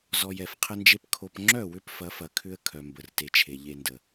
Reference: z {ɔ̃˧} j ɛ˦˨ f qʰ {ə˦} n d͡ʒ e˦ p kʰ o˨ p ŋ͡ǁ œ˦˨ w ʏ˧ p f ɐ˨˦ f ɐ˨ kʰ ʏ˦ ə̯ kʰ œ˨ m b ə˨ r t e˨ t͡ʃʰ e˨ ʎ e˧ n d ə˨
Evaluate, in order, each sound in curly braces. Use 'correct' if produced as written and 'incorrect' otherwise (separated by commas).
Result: incorrect, correct